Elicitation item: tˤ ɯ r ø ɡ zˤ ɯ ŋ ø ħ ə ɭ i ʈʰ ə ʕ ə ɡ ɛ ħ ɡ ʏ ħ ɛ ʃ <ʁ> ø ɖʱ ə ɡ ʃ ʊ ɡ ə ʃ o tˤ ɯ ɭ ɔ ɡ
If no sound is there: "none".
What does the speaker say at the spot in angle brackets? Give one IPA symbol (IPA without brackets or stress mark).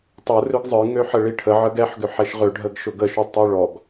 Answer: ʁ